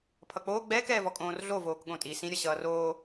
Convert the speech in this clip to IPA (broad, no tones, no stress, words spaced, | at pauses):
pʰʌk͡poː ɡ͡bɛːkɛːvɔ kʼõːrɮovoːk ɠõtʼi sĩɾʲʌ ɕʌːroː